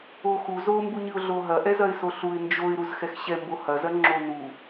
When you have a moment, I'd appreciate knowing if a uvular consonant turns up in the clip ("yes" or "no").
no